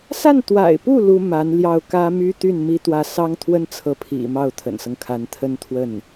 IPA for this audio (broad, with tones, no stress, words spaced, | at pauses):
sa˥˩nt̪wa̰˨˩ɪ̯pu˥˩ lu˥ma˧˥n ljɑ˥˩ʊ̯ kä˥my˥t̪y˥˩n mi˥t̪wä˥˩ sɑ˥ŋt̪ʰwə˥nt͡sʰɤ˧˥pʰḭ˨˩ mɑ˥˩ʊ̯t̪ʰə̰˨˩nsɤ˦ŋkʰa˧˥n t̪ʰə˥nt̪ʰwə˥˩n